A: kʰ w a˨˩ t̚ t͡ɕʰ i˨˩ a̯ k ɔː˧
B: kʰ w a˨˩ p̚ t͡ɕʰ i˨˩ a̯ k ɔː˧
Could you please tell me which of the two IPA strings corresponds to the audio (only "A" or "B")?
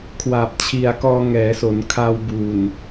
B